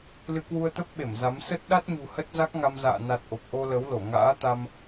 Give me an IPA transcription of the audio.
lɨ˧kwu˧ə̯t̪ə˦˥p̚ɓe˧˩m za˨˦m sə˦˥t̚ ɗa˦˥t̚ɲṳ˨˩ hə˦˥t̚za˦˥k̚ŋa˧mza̰ː˧˨ na˨˩t̚ ʔo˨˩p̚ʔo˧ lə˨˦wlo˧˩ ŋa̰ː˧˥t̪a˧m

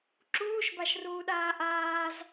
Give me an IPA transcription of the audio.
ǁuːʃbaʃruːɗaː ʔaːz

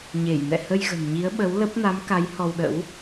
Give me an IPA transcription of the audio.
ɲe˧˩jnɛ̰˧˨ hə˧jɣə̤˨˩n ɲi˨˦ə̯ɓə˨˦wlə˦˥p̚ na˨˦mka˨˦j hɔ˧wɗə̰˧˥w

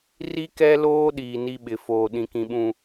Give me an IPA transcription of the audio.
ri˦kɛ˦loː˦ ɗiː˨ni˦ɓɪ˨ foː˨ɗĩ˨kĩ˨ɓũ˨

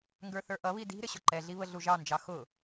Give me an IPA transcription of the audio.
ŋɡə˞θə˞ʔʌβi di̤ ɾɪɕʊǃɛɮi βəɮuʒɑnd͡ʒɑ xʊ

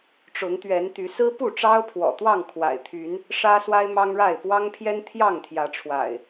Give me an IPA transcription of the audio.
ʈ͡ʂʊ˨˦ŋt̪ɥɛ˨˦nt̪y˨˦ sɹ̩˦pu˥˨ʈ͡ʂɑ˦ʊ̯ pʰwɔ̰˨˩t̪wɑ˥˨ŋkʰwa̰˨˩ɪ̯t̪ʰy˨˦n | ʂä˦swa˦ɪ̯mɑ˦ŋɻa˥˨ɪ̯ pwɑ˦ŋpʰjɛ˦n t̪ʰjɑ˥˨ŋt̪ʰjä˨˦ʈ͡ʂʰwa̰˨˩ɪ̯

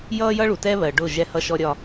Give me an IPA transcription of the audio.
jʌː˦jʌ˦ɭu˨ tɛ˦βɜ˨ ɖʊ˦˨ʒɛ˦hʌ˦ ʃɔ˦ɾʲɒ˦

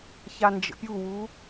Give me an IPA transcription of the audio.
çand͡ʒə̰pʲuwu

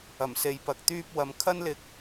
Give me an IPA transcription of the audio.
ɐ˨˩mse˨˧jpɐ˨k̚ t̪yː˧p̚wɐ˨˧m kʰɐ˥nlɪ˧k̚

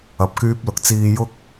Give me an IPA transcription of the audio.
ɐ˨˥p̚kyː˥p̚ lʊ˨k̚t͡siː˧jʊ˥k̚

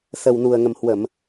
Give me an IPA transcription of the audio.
sə˨˩wnu˨˩ə̯ŋə˨˩mhwə˧˩˨m

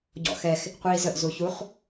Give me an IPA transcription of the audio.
ɟɔ̰xɛx | qʷiːzəʔ zuçuχ

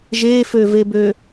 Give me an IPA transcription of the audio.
ʒeføvebø

